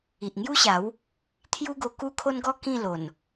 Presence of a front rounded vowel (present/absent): absent